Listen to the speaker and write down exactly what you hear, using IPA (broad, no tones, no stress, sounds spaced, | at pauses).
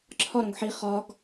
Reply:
ǁʰ ɒ ɾ õ ɡ ħ i χ ɒ ɡ